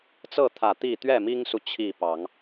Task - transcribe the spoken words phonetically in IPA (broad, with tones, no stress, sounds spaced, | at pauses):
t͡s ɤ˥˨ t̪ʰ ä˨˩ t̪ i˥˨ t̪ ɥ ɛ˥˨ m i˦ ŋ s u˨ t͡ɕʰ i˥˨ p ɑ˨˦ ŋ